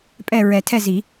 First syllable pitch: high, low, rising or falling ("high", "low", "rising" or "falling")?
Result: falling